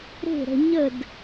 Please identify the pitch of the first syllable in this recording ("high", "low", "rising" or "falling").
falling